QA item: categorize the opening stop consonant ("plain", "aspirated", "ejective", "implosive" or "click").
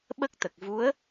implosive